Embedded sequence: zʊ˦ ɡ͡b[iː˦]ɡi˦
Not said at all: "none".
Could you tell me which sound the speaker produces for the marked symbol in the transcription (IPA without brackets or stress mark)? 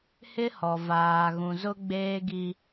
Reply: eː˦